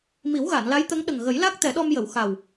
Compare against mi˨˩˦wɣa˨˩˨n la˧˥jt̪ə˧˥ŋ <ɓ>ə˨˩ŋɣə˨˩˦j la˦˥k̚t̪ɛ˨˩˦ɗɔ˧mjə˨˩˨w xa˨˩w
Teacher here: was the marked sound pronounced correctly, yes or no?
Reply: no